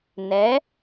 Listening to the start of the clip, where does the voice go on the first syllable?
rising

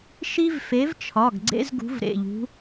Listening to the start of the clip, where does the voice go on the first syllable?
high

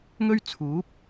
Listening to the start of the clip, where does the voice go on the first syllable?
high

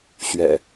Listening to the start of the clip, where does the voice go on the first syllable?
low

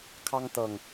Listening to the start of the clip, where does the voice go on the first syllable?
high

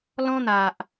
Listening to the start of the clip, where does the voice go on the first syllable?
high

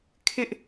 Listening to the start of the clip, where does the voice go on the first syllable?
high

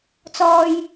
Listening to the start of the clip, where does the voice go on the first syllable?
low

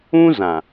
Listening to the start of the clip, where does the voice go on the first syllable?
high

